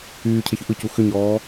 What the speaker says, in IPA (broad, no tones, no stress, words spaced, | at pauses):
yːcʰeçʏ ʔɯcu xʏɲɔː